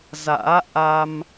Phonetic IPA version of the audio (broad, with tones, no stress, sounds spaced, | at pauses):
z a̰ː˧˥ ʔ a˧ m